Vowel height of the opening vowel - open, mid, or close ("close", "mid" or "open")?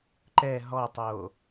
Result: mid